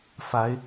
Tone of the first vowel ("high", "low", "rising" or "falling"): rising